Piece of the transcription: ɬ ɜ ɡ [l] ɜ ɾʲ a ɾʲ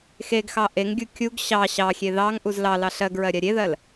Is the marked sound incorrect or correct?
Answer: incorrect